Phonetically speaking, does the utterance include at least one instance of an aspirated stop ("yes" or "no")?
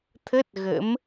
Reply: yes